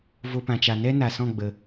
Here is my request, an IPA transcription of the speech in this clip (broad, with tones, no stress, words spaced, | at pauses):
vo˦pã˧t͡ʃa˧ nɛ˦na˨sɔ̃˦˨ ɡ͡bə˨